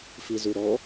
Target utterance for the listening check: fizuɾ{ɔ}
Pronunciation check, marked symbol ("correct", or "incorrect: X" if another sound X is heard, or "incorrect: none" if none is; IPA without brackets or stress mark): correct